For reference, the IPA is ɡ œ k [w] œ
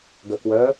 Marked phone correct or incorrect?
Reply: correct